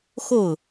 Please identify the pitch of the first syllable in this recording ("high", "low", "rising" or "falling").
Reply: falling